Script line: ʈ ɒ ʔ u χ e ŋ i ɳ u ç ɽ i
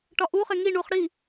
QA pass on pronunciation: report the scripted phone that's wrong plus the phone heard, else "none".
ç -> χ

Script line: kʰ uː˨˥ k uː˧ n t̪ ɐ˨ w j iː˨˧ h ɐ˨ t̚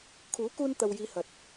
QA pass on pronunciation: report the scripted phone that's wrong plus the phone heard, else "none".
none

